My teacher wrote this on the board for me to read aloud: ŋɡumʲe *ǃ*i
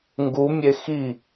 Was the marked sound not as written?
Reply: yes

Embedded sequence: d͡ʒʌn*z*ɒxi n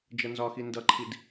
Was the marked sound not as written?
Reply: no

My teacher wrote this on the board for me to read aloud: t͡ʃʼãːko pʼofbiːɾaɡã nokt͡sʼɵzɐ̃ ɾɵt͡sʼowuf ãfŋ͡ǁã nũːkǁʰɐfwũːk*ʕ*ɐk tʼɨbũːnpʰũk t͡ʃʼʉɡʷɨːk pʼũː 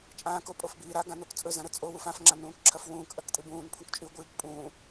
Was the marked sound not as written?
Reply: yes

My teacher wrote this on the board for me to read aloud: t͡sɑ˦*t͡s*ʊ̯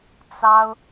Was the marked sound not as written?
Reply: yes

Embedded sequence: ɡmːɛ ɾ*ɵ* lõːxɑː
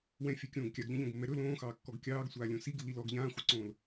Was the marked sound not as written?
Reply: no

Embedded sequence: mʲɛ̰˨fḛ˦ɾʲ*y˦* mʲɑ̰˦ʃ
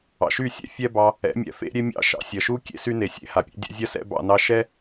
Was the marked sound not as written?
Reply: yes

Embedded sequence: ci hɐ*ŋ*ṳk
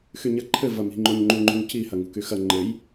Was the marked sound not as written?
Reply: no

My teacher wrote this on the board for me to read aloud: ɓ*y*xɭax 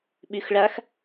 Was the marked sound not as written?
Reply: no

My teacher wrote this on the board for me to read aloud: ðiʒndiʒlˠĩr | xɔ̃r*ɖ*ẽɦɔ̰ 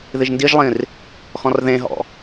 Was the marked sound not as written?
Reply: yes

